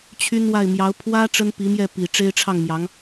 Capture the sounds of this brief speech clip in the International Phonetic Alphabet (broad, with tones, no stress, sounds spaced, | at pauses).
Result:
t͡ɕʰ y˥ n w a˥˩ ɪ̯ m j ɑ˧˥ ʊ̯ pʰ w ä˥ ʈ͡ʂ ə˥ n p i˧˥ m j ɛ˥˩ p i˨˩ ʈ͡ʂ e˥ ɪ̯ ʈ͡ʂʰ ɑ˥˩ ŋ m j ɑ˧˥ ŋ